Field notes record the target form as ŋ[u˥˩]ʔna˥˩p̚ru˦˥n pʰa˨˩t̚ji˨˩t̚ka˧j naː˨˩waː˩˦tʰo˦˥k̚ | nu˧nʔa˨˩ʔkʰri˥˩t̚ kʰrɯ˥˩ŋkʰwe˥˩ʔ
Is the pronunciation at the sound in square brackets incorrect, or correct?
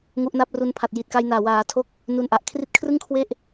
incorrect